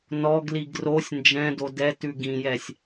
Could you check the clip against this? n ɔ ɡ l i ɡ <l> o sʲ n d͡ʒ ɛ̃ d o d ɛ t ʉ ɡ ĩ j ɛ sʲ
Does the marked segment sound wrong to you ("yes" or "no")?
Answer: yes